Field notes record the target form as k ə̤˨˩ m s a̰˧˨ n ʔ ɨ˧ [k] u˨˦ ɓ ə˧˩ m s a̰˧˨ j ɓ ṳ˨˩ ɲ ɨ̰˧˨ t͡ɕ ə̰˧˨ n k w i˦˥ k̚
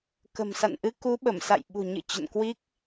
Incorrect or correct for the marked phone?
correct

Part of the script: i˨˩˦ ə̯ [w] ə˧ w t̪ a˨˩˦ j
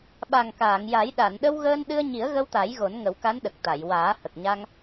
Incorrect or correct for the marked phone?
incorrect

